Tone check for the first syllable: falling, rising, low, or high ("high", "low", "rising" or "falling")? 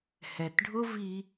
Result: low